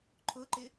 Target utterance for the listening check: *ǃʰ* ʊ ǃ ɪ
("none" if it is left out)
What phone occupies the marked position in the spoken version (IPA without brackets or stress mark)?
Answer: ǃʰ